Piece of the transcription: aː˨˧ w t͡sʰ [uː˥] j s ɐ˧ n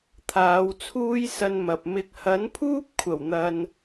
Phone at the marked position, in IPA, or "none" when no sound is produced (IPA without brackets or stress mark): uː˥